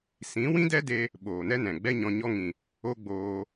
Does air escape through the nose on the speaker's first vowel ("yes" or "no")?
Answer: yes